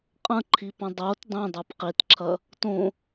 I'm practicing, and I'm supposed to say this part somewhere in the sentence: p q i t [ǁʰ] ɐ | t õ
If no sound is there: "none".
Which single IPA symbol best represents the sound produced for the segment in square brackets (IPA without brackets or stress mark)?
ǁʰ